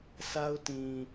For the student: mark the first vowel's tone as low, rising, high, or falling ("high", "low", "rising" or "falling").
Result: high